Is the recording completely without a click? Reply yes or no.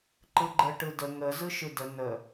no